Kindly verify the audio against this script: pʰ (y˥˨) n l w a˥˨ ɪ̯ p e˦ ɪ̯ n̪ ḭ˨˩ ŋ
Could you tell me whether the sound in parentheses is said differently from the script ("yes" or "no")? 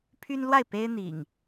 yes